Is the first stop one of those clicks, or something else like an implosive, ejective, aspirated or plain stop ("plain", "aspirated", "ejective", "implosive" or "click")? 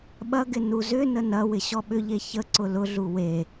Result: implosive